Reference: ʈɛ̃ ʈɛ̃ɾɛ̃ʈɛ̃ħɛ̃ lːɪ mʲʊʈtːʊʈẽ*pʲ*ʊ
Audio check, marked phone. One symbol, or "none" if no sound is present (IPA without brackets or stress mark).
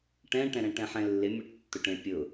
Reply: pʲ